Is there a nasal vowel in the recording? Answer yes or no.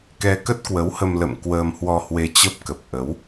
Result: no